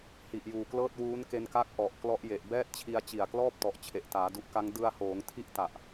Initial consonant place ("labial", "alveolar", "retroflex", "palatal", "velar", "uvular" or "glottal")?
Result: glottal